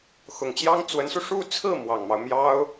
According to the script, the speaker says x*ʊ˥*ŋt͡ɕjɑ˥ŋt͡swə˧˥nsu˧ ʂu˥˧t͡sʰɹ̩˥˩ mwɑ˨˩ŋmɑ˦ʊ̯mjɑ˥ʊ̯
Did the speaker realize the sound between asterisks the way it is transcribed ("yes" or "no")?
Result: no